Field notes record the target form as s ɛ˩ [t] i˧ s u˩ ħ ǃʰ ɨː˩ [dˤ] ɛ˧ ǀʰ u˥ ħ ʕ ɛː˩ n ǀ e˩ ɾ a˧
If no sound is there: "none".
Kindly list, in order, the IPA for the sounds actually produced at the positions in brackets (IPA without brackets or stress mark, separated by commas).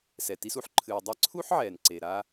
t, dˤ